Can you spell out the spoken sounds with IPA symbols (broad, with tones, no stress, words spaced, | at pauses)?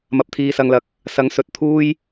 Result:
mɐ˧p̚t̪ʰiː˧sɐ˧ŋlɐ˧k̚ | sɐ˨˥ŋ sɵ˨t̚t̪ʰuː˥j